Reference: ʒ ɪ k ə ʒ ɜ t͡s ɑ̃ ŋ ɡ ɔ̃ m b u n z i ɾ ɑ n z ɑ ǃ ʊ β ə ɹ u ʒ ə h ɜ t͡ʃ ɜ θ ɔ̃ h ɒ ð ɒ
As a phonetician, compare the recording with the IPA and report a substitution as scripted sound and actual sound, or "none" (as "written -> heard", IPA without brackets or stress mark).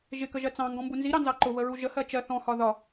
none